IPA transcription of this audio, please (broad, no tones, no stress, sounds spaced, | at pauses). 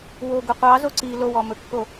w o ɡ ɵ qʷ ɑ z o ǀ i l o w ɔ m ɵ kː o